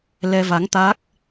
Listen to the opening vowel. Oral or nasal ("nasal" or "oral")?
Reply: oral